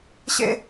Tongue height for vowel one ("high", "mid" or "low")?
mid